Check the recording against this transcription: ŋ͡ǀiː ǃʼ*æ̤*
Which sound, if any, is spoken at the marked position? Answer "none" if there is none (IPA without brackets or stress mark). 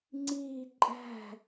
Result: æ̤